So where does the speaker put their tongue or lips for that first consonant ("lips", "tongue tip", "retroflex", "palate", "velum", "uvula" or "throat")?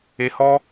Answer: throat